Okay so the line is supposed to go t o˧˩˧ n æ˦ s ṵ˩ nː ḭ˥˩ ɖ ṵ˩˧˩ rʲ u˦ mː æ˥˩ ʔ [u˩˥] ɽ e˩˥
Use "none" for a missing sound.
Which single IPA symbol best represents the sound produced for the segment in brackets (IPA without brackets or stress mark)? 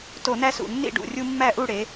u˥˩